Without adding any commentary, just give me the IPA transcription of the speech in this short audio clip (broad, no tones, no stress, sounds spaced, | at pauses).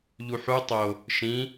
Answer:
ʎ u ħ u tˤ o | ʃ ĩ